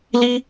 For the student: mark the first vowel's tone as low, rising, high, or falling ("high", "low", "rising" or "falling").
high